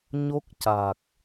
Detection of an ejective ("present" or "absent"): absent